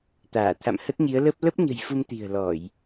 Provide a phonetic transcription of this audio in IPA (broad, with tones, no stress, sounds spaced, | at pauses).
t̪ aː˧˩ t̪ʰ a̰˧˨ m h ə˦˥ t̚ ɲ i˨˦ ə̯ l ə˦˥ p̚ l ə˦˥ p̚ ɲ ə̤˨˩ j f u˧ m t̪ i̤˨˩ ə̯ l ɔ˧˩˨ j